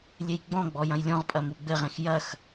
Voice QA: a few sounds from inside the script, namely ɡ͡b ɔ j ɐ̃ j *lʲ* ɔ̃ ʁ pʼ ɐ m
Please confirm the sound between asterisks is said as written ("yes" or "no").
yes